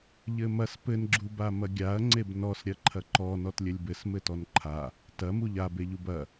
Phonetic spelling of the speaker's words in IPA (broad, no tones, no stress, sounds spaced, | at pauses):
ʎ ɘ m ɐ s p ɘ n ɡ͡ǁ u b a m ɐ ɡʲ a ɐ̯ ŋ͡ǀ e b n ɔ s ɾʲ ɐ ǃʰ ɐ ǃ ɔ n ɔ t lʲ ɘ lʲ b ɘ s m ɘ t ɔ n ǃʰ a | t ɐ m u ʎ a b e ʎ u b ɐ